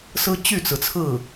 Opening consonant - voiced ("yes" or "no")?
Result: no